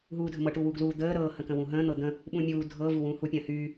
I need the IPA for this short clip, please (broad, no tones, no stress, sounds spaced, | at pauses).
ɦ uː dʱ ə m ɤ ʈ u w u ɡ l uː d̪ əː ɾ ɤː h ə̃ k ə̃ w ũ ɦ ə̃ː n̪ ɤ d̪ ə̃ | ɓ ũ mʲ uː dʱ ɤ v u w ũː h u pʲ ə̃ː h yː